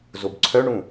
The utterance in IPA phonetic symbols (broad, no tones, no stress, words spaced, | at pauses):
zobǀʰœ ɳũ